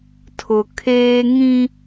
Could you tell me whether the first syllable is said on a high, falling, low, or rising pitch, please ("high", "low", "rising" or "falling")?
low